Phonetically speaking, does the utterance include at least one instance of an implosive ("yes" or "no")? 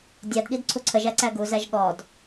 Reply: yes